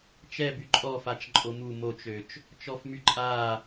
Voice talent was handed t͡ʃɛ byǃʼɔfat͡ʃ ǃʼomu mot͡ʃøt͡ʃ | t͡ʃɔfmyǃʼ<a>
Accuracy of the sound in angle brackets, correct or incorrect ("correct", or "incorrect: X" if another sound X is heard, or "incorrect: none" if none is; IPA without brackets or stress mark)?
correct